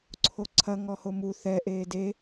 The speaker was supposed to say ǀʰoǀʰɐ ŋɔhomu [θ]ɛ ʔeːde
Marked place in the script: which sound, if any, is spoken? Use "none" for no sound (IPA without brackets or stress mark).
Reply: θ